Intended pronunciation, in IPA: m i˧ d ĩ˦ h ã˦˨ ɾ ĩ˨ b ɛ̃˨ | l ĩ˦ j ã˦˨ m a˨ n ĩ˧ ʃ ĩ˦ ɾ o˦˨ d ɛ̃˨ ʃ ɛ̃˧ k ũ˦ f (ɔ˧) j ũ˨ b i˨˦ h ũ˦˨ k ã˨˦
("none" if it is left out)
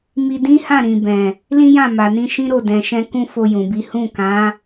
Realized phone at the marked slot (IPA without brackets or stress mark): o˧